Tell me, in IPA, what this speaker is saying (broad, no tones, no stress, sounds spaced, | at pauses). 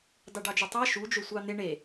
d ɑ ɖ ɑ d͡ʒ ɔ tˤ ɑ ʃ u d͡ʒ ɵ sʷ ɑ n̪ e ɳ e